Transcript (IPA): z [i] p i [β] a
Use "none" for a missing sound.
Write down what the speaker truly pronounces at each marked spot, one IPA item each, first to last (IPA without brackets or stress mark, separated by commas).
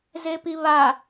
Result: e, β